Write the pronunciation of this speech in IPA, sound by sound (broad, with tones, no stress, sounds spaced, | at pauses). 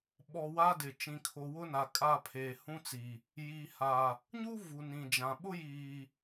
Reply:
ɓ ɔ˨ w a˦ d ɪ˨ t͡ʃ ĩ˨ kʰ o˨ w ʊ˦ n a˨ kʼ a˦˨ pʰ eː˨ h ũ˦ t͡s i˨ | j i˨ h a˨ | ɲ u˦ v u˨ n ĩ˨ d͡ʒ ã˨ ɓ ʊ˦ j iː˨